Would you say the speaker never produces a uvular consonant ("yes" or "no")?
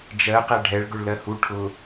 no